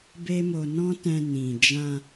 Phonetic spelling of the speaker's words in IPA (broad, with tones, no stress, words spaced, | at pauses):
be˦mo˧ nɔ̃˦tɛ̃˧ nĩ˨d͡ʒã˧